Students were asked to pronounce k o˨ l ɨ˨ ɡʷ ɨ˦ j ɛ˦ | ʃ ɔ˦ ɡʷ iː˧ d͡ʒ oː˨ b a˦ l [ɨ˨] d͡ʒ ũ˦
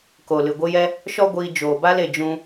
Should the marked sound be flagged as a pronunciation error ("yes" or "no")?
yes